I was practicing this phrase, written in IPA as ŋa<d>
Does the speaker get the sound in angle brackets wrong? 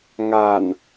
yes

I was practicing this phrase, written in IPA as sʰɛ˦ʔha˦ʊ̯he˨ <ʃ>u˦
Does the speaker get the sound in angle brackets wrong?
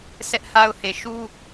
no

